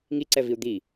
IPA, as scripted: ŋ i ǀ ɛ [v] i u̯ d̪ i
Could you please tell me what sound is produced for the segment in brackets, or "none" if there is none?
v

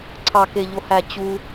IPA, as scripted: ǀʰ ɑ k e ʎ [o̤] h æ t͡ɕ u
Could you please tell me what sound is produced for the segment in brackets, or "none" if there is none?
o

